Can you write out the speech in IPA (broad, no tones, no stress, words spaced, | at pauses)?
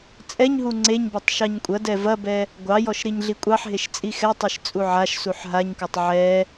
t͡sʼɛɲɦu ŋ͡ǀeɲbɔtˤ ʃɑɲkʷʼɐdɛ vɐbɛ | ɡʷɑjɔʃ ɾiɲɮikʷʼɑħɦeʃ t͡sʼixɛtˤiʃ t͡sʼuʕaʃsuħ ɦaɲkɔtˤ ʕɛ